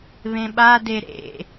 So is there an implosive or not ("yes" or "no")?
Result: yes